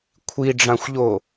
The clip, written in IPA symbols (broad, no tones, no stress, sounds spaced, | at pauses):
kʷʰ i ɖ͡ʐ ã xʷ ʎ o